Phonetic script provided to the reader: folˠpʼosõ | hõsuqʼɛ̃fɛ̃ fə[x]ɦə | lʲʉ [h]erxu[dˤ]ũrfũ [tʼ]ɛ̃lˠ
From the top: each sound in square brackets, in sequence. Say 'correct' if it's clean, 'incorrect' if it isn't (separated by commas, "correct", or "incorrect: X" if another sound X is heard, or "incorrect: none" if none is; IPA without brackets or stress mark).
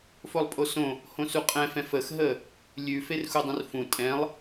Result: correct, incorrect: f, correct, correct